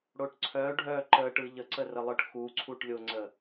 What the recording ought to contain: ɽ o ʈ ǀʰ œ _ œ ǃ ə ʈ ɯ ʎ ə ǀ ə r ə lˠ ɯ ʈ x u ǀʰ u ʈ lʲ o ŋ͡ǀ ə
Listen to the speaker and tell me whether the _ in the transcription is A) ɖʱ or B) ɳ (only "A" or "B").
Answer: A